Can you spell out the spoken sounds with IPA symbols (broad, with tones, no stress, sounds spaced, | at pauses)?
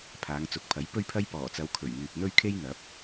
pʰ aː˨˧ ŋ t͡s ʊ˨˥ k̚ pʰ ɐ˨˥ j p ɵ˥ ɥ pʰ ɐ˥ j p ɔː˨˩ t͡s ɐ˨˧ w kʰ ɵ˨˩ ɥ ŋ yː˨ p̚ n̪ ɵ˥ ɥ kʰ e˥ j n̪ ɐ˨˥ p̚